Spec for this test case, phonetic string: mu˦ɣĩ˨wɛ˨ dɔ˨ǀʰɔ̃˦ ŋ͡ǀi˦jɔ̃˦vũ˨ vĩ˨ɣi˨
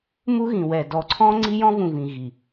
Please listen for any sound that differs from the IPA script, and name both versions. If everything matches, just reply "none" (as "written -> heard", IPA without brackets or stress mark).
none